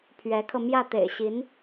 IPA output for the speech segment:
pʰ ɥ ɛ˧˥ kʰ ɤ˧ m j ä˥˩ t̪ ḛ˨˩ ɪ̯ ɕ i˧˥ n

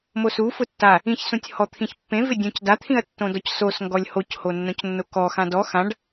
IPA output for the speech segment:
m o s u f ʊ tː a | ĩ ç s ũ tʲ h ɔ t̪ʰ ĩ ç pː ẽ v ɪ dʲ õ c d a t̪ʰ ĩ ɐ̯ tː õ d ɔ c s o s ŋ ɡ ɔ lʲ h o c h o nː õ c nː o k ɔ x ã d ɔ x ã ɖ

